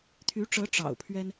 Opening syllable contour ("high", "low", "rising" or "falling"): rising